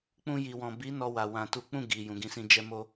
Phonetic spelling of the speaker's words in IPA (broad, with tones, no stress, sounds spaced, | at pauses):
k͡p ũ˧ j i˨ w ɔ̃˨ b i˨˦ n ɔ˧ w a˨ w ã˨ t u˨˦ k͡p ũ˦˨ ɡ i˨ j ũ˨ ɡ ĩ˧ s ĩ˧ d͡ʒ ɛ˦ m o˦